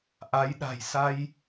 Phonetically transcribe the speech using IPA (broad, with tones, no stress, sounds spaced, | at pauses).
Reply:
ʔ a˨˦ j ɗ a̤˨˩ j s a˧ j